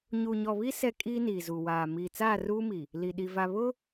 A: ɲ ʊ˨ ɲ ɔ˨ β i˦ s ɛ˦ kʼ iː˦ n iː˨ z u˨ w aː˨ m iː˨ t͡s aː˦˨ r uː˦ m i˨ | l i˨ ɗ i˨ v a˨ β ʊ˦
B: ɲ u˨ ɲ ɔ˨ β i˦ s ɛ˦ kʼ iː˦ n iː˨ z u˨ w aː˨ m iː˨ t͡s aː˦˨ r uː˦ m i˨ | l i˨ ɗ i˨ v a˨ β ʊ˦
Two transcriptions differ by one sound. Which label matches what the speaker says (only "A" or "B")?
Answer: B